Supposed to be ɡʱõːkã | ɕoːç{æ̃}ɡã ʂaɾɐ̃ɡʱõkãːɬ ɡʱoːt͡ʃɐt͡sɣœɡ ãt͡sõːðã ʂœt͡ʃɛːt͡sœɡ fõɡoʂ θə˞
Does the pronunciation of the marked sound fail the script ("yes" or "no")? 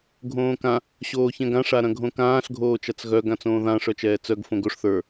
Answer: yes